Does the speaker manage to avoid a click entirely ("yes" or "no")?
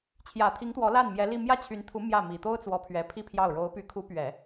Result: yes